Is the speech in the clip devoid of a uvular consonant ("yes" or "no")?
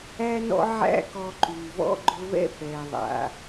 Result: yes